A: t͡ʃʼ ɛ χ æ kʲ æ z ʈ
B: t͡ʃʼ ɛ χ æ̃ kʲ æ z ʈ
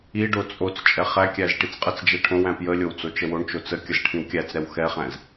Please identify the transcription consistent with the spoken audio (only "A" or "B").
A